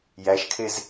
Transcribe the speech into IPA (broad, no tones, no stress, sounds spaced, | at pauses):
j æ ʃ kʰ e z